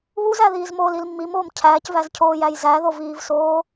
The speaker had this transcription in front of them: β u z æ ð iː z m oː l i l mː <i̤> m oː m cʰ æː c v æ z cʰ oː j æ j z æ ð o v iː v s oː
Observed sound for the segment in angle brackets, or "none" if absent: i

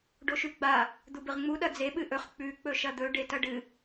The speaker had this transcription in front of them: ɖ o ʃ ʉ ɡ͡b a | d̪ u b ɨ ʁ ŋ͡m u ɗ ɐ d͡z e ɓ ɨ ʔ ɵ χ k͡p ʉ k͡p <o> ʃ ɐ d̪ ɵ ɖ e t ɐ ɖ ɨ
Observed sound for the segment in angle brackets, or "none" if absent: ɵ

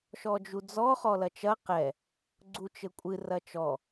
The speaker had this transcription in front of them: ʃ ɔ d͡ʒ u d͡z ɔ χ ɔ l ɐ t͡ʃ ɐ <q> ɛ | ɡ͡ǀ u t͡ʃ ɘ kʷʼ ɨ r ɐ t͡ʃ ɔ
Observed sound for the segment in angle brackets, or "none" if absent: q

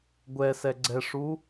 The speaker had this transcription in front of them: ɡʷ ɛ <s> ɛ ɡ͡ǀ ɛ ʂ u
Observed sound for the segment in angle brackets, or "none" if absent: s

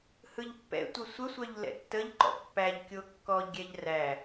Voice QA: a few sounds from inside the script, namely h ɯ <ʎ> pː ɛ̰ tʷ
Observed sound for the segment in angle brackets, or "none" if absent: ʎ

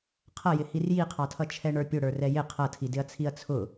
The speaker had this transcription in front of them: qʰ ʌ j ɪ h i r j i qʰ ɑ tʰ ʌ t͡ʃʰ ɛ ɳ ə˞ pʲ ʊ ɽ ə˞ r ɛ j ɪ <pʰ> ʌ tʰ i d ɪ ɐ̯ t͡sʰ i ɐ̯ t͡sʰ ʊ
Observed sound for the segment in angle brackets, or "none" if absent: qʰ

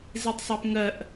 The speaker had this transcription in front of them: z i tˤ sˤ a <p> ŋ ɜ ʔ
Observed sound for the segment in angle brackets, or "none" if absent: p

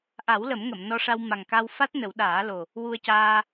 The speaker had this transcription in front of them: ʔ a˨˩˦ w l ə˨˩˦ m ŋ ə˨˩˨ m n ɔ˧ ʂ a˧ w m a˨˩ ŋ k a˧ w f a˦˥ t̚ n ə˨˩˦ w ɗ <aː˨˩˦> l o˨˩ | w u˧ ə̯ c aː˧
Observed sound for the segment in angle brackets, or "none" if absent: aː˨˩˦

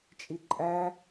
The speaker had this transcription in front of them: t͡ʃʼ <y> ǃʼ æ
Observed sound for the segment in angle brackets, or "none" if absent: i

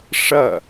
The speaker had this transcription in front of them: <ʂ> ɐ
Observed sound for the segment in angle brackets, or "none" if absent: ʂ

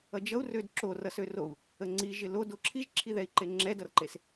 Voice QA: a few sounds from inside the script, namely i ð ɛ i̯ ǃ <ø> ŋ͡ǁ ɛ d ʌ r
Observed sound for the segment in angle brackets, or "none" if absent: e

